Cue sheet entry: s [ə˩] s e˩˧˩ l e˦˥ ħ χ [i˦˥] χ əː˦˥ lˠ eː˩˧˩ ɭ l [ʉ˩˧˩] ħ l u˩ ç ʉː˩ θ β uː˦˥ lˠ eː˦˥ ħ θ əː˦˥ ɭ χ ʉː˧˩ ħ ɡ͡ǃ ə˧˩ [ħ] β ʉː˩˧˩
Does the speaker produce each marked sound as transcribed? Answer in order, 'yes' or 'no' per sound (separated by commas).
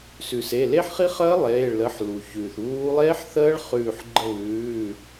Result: no, yes, no, no